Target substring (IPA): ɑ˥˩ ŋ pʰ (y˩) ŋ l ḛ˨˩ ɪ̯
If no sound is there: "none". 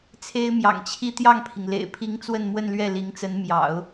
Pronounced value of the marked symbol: i˩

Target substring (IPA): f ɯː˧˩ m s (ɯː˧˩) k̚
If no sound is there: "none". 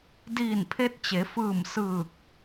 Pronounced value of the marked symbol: ɯː˧˩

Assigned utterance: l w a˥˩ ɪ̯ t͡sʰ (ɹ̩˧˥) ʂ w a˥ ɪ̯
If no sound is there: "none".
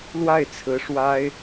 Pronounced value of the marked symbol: ɹ̩˧˥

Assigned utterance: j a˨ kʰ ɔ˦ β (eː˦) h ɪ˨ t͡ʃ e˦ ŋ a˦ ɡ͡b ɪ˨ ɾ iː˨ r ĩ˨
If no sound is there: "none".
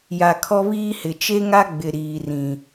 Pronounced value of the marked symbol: iː˦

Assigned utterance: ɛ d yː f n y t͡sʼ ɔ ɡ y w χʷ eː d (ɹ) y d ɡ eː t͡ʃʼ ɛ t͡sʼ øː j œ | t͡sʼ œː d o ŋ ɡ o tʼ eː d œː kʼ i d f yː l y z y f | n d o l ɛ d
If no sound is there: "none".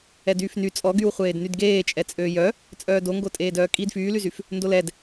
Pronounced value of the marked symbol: n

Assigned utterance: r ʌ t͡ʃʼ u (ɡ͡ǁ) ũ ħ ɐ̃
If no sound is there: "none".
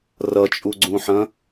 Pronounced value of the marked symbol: ɡ͡ǀ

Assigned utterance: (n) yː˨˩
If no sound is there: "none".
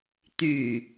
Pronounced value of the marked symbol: t̪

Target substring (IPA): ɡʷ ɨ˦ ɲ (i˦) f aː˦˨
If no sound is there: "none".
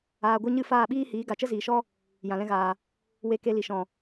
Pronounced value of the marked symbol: ɨ˦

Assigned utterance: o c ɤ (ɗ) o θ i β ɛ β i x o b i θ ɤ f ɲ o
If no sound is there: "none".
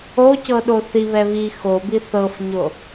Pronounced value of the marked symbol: ɗ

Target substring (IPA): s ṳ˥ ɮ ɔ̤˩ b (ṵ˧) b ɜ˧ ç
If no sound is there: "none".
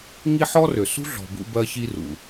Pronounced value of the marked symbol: ṵ˧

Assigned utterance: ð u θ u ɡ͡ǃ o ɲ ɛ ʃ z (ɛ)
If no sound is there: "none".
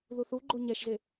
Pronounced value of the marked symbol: e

